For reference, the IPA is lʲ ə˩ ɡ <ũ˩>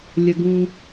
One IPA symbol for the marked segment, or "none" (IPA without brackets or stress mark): ũ˩